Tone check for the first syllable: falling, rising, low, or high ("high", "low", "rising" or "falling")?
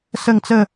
falling